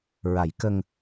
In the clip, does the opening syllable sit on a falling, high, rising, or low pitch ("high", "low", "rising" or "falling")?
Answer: low